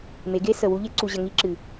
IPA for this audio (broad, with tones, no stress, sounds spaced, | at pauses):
m e˨˦ ɡ e˦ s ə˨ w u˦ ʎ e˦ ǀ u˨ ʑ ə˨ ŋ i˦ ǁ ɨ˨